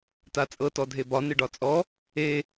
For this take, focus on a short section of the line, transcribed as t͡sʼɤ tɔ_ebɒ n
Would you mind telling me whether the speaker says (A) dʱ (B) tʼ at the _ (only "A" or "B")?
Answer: A